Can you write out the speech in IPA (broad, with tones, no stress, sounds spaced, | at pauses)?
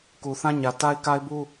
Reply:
k u˨ θ ã˦ ɲ ä˨ t a˦ ɪ̯ k a˦ ɪ̯ b u˦